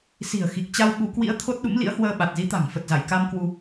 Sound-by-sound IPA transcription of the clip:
s i̤˨˩ ə̯ x i˨˩ k̚ t͡ɕ a˧ w ɓ u˨˦ k w ḭ˧˥ ə̯ t̪ʰ o˦˥ t̚ ɗ ṵ˧˥ m l ḭ˧˥ ə̯ h w əː˧ ɓ a˨˩ t̚ z i˨˦ t̪ a̤˨˩ ŋ f ə˨˩ t̚ z a˧˩ j k a˧ m k w u˧

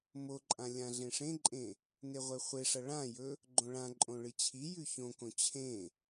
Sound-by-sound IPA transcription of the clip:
m o ǃʼ ã lʲ ã ɮ ẽ ʂ ẽ ǃʼ ẽ | n e ʁʷ e χʷ e ʂ ɐ ɭ ã j ɵ | ɡ͡ǃ õ ɭ ã ǃʼ õ ɭ ɨ t͡ɕʰ i j ʉ ç õ k õ t͡ɕʰ ẽ

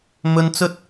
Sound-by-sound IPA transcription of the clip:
m ɵ˧ n t͡s ɵ˥ t̚

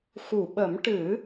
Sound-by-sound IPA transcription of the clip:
x u˨˩˨ ɓ ə˨˩˦ m ʈ ɨ˨˩˦

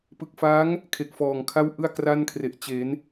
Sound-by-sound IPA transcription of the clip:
p ɯ˨˩ k̚ f a˦˥ ŋ | kʰ e˨˩ k̚ f ɔː˨˩ ŋ kʰ a˥˩ w ʔ ɯ˥˩ a̯ k r a˥˩ n kʰ r e˨˩ ʔ t͡ɕ e˩˦ n

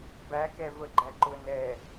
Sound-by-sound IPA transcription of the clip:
b æ k ɛ v ə ɡ͡ǃ æ ǃ ʊ n ɛ

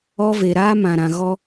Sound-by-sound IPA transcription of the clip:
ɔ˦ v e˨ ɾ aː˦ m ã˨ ɾ ã˨ ɣ ɔ˦

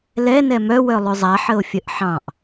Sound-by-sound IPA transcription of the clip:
l ɛ n ɛ m œ w œ lˠ ʉ zˤ a ħ ə o̯ fʲ ə ʔ ħ ɑ̃ ʔ

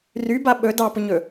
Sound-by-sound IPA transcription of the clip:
r y b a ɓ ɵ d ɑ p ʊ ɲ ɵ

